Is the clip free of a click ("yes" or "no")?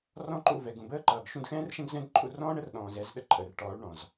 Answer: no